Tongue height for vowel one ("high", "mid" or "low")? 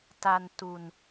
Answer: low